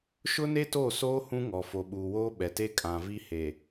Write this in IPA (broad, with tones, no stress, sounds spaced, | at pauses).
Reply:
ʃ ʊ˦ n e˦ t oː˦˨ s oː˦ h ũ˦ ŋ ɔ˨ f o˨ ɓ uː˨ w oː˦ ɓ ɛ˨ t e˦ kʼ ã˨ v i˦ h e˨